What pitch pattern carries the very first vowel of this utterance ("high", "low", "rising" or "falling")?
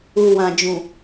low